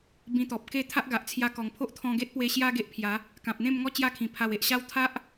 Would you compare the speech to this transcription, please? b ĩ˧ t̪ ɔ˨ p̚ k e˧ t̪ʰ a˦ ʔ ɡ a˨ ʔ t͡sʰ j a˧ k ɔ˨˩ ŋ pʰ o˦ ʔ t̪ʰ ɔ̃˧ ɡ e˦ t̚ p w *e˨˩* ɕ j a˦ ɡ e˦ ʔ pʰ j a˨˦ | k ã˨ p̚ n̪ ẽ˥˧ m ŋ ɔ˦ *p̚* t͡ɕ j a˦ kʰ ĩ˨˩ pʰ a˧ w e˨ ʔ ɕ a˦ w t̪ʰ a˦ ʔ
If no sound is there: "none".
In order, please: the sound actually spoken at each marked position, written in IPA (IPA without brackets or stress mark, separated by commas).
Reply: e˧, none